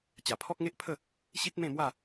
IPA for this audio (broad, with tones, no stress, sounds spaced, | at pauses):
t͡ɕ a˨˩ pʰ ɔ˦ k̚ ŋ e˦ ʔ pʰ ə˥˧ | ɕ i˦ t̚ m ẽ˥˧ m w a˥˧